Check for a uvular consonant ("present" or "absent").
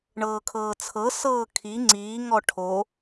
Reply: absent